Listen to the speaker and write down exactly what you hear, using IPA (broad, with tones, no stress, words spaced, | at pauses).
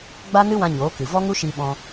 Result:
ɡ͡ba˦nɨ˦wã˧ ɲoː˨˦kɨ˨ vɔ˦ŋu˦ʃi˧ɓɔ̃˧